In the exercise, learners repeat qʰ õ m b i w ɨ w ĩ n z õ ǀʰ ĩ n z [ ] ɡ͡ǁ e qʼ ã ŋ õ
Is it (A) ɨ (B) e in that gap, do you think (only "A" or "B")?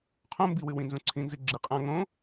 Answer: A